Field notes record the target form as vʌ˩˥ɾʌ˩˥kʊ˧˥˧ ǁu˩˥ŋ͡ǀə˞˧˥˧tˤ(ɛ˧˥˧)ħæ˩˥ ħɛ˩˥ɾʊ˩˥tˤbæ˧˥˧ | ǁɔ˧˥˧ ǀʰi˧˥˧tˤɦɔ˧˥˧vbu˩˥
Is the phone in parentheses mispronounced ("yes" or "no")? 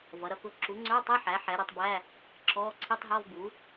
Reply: no